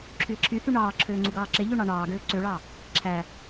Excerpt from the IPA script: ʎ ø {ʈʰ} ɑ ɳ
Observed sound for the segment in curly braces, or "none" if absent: ɳ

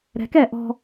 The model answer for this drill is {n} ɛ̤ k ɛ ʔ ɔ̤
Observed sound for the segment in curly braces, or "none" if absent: ɾ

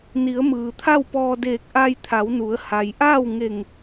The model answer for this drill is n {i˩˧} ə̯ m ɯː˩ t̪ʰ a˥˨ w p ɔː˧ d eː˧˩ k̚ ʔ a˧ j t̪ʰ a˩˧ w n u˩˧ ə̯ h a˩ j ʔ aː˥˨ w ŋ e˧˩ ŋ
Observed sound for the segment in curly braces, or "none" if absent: i˩˧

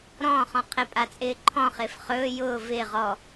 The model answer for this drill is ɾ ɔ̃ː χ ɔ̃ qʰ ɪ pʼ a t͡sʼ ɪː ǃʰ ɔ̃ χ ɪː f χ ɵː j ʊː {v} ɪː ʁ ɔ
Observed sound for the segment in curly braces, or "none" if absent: v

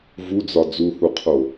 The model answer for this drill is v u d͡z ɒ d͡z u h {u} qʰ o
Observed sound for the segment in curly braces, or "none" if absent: u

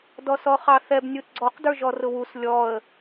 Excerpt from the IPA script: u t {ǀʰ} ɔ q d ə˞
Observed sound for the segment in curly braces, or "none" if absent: ɡ͡ǀ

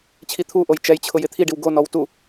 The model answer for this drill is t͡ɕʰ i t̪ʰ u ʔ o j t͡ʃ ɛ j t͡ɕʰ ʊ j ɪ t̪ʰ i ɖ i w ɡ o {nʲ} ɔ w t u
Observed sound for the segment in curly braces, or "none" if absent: n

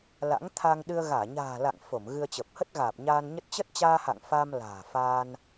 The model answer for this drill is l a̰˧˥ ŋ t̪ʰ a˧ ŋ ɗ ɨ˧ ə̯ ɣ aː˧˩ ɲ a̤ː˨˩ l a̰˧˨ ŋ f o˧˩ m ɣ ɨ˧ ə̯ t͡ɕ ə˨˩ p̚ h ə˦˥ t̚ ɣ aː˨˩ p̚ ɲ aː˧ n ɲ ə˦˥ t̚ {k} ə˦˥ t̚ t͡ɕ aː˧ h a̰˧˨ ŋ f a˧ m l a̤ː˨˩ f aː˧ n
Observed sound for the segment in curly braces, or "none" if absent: t͡ɕ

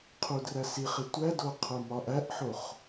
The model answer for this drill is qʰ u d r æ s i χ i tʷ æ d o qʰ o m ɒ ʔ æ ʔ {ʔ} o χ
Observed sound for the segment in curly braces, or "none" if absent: ħ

